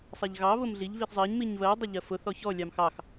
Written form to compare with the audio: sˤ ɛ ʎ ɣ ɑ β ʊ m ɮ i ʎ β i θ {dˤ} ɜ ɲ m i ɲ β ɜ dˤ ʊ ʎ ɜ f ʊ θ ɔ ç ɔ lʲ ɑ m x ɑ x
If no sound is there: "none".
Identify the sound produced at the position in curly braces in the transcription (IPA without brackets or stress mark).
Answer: zˤ